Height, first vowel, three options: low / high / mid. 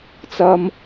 low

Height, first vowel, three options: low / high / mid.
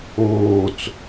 mid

